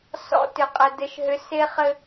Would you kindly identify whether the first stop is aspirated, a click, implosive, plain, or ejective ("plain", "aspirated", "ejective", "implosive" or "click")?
plain